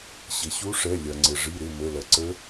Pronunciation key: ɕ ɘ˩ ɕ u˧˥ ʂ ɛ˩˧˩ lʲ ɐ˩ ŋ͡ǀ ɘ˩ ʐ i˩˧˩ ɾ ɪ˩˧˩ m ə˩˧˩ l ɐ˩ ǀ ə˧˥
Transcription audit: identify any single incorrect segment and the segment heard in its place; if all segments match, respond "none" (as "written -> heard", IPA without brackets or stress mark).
none